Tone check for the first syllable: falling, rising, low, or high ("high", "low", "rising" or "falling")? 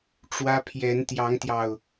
high